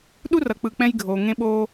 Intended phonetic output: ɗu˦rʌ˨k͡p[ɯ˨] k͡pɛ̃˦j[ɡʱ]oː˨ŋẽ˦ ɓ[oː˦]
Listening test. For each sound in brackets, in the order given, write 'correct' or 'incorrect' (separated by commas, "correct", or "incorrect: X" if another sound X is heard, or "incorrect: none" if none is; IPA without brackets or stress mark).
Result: correct, correct, correct